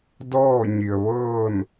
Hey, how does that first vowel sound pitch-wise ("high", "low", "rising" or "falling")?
falling